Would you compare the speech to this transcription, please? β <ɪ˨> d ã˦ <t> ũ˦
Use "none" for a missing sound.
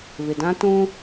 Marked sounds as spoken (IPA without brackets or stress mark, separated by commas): ɪ˨, t